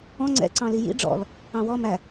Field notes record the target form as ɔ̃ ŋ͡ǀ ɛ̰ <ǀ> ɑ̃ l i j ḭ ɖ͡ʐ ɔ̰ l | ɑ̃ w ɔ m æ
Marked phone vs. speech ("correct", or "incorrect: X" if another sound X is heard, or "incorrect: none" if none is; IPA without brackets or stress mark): correct